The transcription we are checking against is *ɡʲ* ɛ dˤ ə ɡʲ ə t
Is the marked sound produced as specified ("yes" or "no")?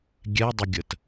yes